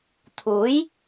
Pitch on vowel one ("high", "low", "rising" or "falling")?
rising